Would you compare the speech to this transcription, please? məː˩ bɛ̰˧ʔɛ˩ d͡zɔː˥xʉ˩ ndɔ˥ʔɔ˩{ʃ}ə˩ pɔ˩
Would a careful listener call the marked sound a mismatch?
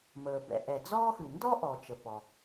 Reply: yes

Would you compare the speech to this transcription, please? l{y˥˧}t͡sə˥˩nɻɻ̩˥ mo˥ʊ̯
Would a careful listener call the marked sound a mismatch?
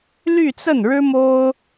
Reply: no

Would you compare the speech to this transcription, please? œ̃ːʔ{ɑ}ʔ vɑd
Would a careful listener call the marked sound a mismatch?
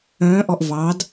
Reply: yes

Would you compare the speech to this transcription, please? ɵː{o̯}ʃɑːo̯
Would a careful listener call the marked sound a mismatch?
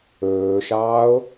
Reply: yes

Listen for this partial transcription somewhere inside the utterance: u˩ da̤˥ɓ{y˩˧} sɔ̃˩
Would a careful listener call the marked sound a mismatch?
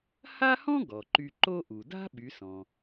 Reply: no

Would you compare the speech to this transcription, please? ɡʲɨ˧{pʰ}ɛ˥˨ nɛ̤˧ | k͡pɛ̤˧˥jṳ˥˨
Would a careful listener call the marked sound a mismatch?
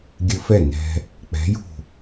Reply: yes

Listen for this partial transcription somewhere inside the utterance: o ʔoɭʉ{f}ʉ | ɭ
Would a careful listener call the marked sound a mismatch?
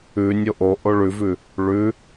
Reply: yes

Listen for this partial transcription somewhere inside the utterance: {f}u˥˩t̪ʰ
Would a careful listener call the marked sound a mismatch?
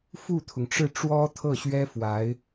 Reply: no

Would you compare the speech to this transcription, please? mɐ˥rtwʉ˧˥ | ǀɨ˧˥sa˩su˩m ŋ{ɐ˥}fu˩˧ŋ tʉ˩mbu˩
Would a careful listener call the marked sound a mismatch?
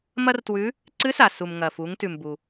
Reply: yes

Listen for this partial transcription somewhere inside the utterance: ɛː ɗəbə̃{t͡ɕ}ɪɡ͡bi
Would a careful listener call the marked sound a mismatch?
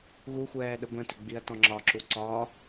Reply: yes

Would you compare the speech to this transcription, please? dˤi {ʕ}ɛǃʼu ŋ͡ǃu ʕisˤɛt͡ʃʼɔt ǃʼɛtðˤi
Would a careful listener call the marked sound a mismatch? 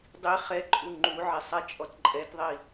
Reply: yes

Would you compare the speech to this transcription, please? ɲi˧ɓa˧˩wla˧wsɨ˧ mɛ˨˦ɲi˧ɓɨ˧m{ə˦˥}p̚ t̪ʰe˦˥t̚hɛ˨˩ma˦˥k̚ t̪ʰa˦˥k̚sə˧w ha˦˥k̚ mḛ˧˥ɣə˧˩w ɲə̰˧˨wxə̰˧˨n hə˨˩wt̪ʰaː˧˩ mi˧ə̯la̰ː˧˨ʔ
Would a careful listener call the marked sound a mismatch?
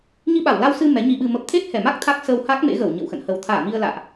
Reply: no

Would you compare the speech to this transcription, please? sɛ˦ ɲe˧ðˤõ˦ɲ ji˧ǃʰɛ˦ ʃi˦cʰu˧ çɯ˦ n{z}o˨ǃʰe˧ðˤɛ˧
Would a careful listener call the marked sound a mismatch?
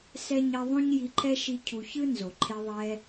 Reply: no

